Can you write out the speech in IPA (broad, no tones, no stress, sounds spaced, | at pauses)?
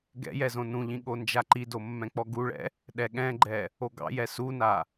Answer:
ɡ ɛ̰ j ɛ z õ n ũ ʎ ĩ ɠ o n d͡ʒ a ǃ i d o mː ɛ̃ k͡p ɔ ɡ u ɭ ɛ̰ | ɗ ɛ ɠ ɛ̃ ɡ͡ǃ ɛ | o ɡ ɑ̰ j ɛ s u n a